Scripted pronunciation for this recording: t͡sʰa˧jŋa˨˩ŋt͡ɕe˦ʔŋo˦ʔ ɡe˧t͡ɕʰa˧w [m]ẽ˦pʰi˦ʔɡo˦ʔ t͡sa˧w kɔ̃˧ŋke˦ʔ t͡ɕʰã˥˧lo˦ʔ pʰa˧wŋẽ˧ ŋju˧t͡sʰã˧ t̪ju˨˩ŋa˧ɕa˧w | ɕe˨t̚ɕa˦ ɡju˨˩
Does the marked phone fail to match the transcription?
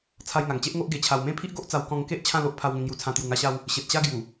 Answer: no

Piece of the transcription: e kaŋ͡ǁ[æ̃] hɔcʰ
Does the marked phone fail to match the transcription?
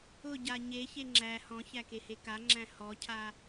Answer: no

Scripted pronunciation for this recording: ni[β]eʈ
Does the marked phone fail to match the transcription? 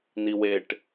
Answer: yes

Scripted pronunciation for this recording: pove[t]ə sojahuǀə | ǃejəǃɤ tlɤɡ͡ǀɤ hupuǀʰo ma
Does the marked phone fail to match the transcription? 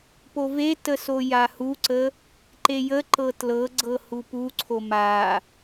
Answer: no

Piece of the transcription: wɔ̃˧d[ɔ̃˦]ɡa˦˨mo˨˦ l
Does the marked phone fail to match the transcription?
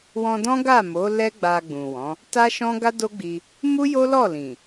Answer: no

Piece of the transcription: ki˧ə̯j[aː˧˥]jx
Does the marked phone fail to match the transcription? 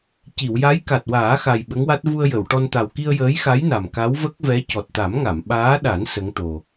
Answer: yes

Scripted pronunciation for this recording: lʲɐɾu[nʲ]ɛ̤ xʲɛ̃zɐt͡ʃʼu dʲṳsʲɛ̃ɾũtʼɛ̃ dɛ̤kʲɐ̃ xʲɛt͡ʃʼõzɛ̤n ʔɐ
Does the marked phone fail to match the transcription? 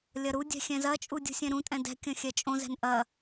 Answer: yes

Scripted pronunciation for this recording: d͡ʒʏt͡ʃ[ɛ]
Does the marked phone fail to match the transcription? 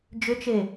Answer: yes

